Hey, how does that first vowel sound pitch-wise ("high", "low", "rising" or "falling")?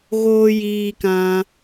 high